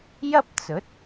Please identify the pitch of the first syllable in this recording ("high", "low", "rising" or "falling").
high